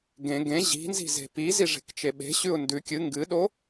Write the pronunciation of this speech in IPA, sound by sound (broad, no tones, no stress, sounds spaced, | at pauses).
ɡ ẽ ɡ ẽ ʑ i̤ n z i̤ z e̤ p i z i ʐ e̤ k t͡ʃ e ɓ e̤ ɕ ʉ ʊ̯ n d ʉ kʲ ɨ ŋ ɡ ɨ ɗ o